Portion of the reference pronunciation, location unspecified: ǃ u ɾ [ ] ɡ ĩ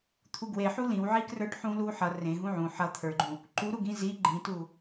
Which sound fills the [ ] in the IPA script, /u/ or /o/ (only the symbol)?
u